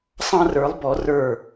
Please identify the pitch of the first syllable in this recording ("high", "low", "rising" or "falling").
high